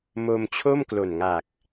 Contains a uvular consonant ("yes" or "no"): no